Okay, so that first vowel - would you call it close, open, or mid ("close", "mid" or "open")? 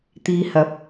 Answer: close